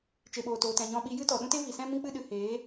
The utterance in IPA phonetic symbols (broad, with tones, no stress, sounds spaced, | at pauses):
t͡ʃ e˨ ɓ oː˨ t oː˨ t ɛ̃˨ ɲ ɔ̃˧ ɓ i˧ j ɨ˦ t ɔ˨ ɗ ũ˦ t e˦ v i˨ s ɛ̃˦ m ĩ˦ k͡p ɨ˦ ɗ ɨ˨ h eː˨˦